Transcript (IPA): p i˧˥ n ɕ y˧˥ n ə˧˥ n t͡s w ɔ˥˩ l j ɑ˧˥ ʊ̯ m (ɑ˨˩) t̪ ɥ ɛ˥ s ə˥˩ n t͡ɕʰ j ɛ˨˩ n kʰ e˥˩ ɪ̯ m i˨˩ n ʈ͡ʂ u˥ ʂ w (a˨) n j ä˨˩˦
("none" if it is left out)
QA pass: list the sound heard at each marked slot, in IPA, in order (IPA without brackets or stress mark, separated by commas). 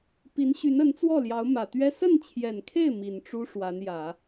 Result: ä˨˩, a˧˥